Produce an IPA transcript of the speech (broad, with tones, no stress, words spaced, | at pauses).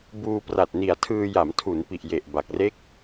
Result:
buː˧pra˨˩t̚ni˨˩a̯tʰɯː˧ ja˩˦mtʰu˩˦npi˨˩ʔje˨˩ʔ ba˨˩k̚re˥˩k̚